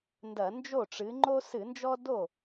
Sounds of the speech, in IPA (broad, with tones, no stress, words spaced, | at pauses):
ndɐ˧˩˧ nd͡ʒo˥˩ʈ͡ʂɨ˨˥ ŋ͡ǃo˦sɨ˧˩˧nd͡ʒɔ˦ do˥˩